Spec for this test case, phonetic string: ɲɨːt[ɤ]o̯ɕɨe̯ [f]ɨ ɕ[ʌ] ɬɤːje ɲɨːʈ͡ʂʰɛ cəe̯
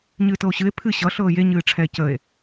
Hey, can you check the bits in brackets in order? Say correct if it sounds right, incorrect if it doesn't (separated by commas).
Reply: correct, incorrect, correct